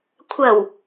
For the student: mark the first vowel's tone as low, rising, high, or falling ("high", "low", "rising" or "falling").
low